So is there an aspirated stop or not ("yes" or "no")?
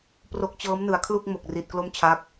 yes